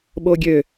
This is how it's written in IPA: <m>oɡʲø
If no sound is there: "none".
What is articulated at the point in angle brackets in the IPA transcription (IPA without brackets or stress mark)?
ɓ